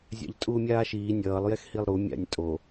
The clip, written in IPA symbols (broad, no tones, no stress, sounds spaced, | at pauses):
zʲ a̰ ʎ tʼ uː mʲ aː ʃ iː nʲ ʌː lˠ j ɛ x h i lˠ ɾ u mʲ a̰ nʲ tʼ o